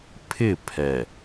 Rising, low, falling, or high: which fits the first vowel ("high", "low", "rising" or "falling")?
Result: falling